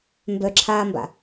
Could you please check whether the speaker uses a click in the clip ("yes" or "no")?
yes